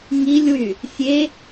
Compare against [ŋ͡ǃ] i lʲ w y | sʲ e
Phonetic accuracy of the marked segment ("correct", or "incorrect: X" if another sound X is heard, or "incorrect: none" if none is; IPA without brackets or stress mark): incorrect: ŋ